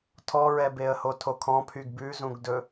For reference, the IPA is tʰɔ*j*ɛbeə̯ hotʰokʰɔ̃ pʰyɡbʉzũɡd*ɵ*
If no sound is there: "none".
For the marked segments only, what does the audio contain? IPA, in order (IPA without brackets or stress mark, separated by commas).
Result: ɹ, ɵ